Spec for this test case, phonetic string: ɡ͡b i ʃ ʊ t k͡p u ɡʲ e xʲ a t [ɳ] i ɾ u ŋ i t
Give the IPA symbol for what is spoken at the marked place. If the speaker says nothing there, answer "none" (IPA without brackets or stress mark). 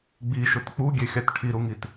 ʈʰ